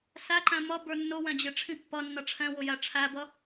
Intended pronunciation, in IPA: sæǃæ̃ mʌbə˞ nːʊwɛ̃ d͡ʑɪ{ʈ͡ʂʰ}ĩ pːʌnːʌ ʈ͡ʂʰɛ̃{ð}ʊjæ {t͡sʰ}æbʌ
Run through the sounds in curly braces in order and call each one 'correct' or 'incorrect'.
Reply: correct, incorrect: w, incorrect: ʈ͡ʂʰ

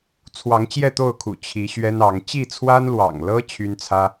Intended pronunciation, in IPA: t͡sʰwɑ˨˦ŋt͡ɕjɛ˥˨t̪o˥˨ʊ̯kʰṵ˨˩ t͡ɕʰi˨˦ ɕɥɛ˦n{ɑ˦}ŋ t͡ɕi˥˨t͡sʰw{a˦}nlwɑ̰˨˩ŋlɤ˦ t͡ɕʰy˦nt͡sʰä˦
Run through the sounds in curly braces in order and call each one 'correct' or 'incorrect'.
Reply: incorrect: ɑ˨˦, correct

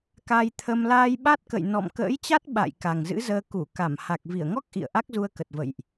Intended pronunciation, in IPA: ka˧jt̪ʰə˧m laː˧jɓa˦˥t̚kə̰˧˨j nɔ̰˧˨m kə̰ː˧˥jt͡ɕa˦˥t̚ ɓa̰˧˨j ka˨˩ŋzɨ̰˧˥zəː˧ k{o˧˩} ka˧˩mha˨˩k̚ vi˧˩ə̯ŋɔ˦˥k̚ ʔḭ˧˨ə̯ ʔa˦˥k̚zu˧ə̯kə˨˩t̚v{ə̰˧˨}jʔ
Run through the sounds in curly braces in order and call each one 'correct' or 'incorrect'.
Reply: incorrect: u˧˩, correct

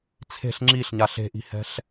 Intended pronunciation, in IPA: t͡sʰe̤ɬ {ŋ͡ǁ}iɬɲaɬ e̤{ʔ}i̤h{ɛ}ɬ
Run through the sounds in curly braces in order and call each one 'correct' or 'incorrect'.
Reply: correct, correct, incorrect: ɛ̤

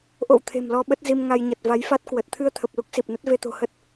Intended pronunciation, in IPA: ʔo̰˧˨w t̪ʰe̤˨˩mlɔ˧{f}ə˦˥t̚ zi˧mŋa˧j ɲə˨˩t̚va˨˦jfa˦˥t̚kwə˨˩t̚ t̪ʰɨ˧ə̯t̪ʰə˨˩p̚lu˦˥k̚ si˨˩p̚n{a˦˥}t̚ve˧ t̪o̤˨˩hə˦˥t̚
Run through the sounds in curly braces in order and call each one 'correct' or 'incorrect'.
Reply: incorrect: ɓ, incorrect: ə˦˥

